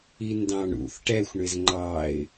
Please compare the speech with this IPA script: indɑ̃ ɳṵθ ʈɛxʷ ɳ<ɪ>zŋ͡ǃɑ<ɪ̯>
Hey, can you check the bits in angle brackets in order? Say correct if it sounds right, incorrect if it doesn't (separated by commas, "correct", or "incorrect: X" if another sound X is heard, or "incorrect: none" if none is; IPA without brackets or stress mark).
correct, correct